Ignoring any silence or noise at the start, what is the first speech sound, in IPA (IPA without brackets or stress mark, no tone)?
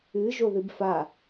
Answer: ɨ